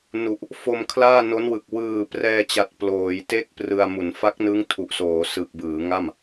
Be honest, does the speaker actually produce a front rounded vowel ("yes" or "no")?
no